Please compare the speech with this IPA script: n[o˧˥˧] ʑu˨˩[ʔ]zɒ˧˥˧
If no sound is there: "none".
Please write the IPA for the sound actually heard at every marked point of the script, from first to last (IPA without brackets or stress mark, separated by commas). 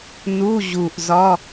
u˧˥˧, ʔ